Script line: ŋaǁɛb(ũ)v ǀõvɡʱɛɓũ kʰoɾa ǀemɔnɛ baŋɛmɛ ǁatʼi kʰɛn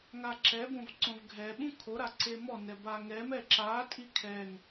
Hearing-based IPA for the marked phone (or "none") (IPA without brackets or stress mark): õ